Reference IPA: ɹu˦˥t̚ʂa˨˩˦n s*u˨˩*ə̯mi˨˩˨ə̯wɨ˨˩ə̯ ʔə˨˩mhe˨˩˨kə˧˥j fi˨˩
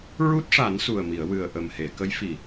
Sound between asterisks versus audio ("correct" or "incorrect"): correct